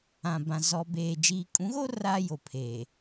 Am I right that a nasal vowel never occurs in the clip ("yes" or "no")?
no